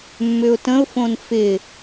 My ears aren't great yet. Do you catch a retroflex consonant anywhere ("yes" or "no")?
no